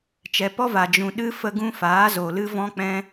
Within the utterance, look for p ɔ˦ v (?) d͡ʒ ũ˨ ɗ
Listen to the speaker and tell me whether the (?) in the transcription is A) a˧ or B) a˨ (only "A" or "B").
B